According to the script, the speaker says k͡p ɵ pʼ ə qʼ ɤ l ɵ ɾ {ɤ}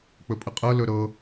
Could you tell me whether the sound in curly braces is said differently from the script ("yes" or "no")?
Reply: no